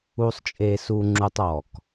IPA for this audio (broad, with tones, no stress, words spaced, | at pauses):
u˦sˤt͡ʃʼe˦su˦ŋ͡ǁu˦tˤ ɔ˦˨k